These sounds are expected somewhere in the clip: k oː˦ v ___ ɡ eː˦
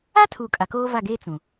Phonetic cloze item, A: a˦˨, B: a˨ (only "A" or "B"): A